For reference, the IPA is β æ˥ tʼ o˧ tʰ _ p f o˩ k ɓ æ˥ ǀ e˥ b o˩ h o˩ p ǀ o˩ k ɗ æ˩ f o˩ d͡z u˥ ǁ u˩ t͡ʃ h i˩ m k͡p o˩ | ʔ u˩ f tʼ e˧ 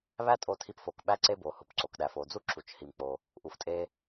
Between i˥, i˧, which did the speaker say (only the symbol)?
i˧